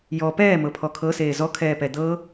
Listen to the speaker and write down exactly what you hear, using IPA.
j ɔ p ɛː m ɤ pʰ ɔ kʰ ɤ s eː z ɔ kʰ ɛː p ɛ d̪ ɤ

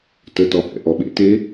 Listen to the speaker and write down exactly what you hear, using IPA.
t ə t ɔ h ɛ̰ ʔ ɔ ɓ ḛ t e

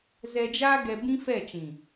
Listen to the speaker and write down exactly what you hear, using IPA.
z ɛ˧ d͡ʒ aː˦ ɡ ɛ˧ b ĩ˦ f ɛ˦˨ t͡ʃ ĩ˨

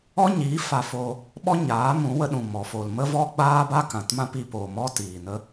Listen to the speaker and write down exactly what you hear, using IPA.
ɔ˦ ɲ iː˨˦ f a˧ f oː˧ | ɓ ɔ˦ ɲ aː˨˦ m ũ˨˦ w ə˧ ɗ ũ˨ m ɔ˨ f oː˨ l m ə˦ v ɔ˦ ɡ͡b aː˦ b a˦ k ã˨ t m ã˦ p i˧ p oː˨ m ɔ˦ t iː˨ n ə˦

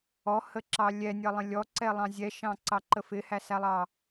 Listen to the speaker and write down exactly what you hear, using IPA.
ɔ h ə ǁ ɑ lʲ ɛ nʲ ʌ lˠ ə̃ lʲ ɔ ǀ ɛ lˠ ɑ̃ zʲ ɛ ʃ ɑ̃ ǀ ɑ ǃ ə f ɪ h æ s æ lˠ ɑ

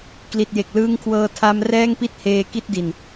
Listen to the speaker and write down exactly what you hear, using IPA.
k l i˨˩ t̚ j e˨˩ k̚ l ɯː˦˥ ŋ kʰ w ɤː˧ tʰ a˦˥ m r ɛː˥˩ ŋ p i˥˩ t̚ h eː˧ k i˥˩ t̚ d i˨˩ n

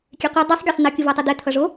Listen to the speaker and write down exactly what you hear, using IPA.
kʲ e qʷ ɛ dˤ i sˤ ɡʲ e sˤ n ʌ kʲ ɯ v a tˤ ɛ d̪ ɛ t̪ʰ ʌ ʐ o

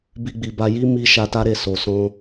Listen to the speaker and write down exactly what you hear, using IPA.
b i˧ ɡ͡b i˨ b a˧ j i˦ m i˧ ʃ a˧ t a˦ ɾ e˦˨ s o˨ s ɔ̃˧

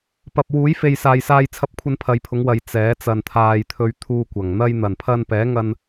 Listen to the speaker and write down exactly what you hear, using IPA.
p ɐ˨ p̚ w uː˨˥ j f e˨ j s aː˨ j s aː˧ j t͡sʰ ɐ˥ p̚ kʷʰ ɐ˥ n pʰ ɐ˨˧ j pʰ ʊ˨˥ ŋ w ɐ˨ j t͡s ɛː˨˥ t͡s ɐ˨ n t̪ʰ aː˨ j t̪ʰ ɵ˧ ɥ t̪ʰ uː˧ kʷ ɐ˨˩ ŋ n̪ ɐ˧ j n̪ ɐ˨˩ n pʰ ɐ˧ n p ɛː˨˥ ŋ ɐ˧ n

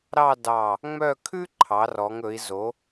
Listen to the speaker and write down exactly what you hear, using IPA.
ɾ ɑ˥˧ d ɑ˧˩ | ŋ͡m œ˥˧ kʰ ʉ˥ ǃʰ ɑ˩˧ r ɔ˩˧ ŋ ɵ˩˧ i̯ z o˩˧

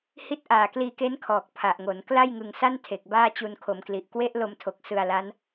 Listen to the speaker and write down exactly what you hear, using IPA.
h i˦˥ t̚ ʔ aː˨˩ k l iː˧ k e˦˥ n kʰ ɔː˨˩ k̚ pʰ a˨˩ ʔ ŋ o˩˦ n k l a˥˩ j ŋ ɯ˧ ŋ s a˥˩ n tʰ e˨˩ k̚ b aː˥˩ t͡ɕ u˧ n kʰ o˩˦ m k l i˨˩ ʔ k w e˦˥ ʔ l o˧ m tʰ o˨˩ k̚ s ɯ˧ a̯ l a˦˥ n

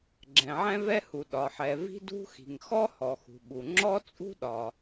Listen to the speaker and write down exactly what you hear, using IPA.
ɡ͡ǁ ɛ̃˩ ʕ ɛ̃˥ v ɛ˥ h u˩ ɗ ɒ˩ ħ ɛ˩ v i̤˥ d ṳ˥ x i̤˩ ŋ x ɔ˥ h ɔ˩ x ṳ˩ ɓ u˩ ŋ͡ǁ ɔ˥ t͡sʼ ṳ˥ ɗ ɒ˩

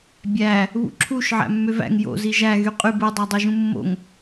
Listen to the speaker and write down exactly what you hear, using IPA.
bʲ æ | β ṵ ǁʰ u ʃ ʕ æ̰ mː ø v æ̰ ŋ j o̰ z i ʒ æ ɣ y qʼ y b ɯ dˤ æ dˤ i ʒ ũ mː o̰ ŋ

